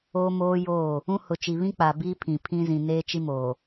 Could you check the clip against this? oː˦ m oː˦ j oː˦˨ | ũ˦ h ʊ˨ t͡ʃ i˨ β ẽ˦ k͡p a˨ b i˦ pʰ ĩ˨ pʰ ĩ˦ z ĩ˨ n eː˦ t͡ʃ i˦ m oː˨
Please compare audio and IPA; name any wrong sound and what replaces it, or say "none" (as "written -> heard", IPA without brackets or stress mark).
ẽ˦ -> ĩ˦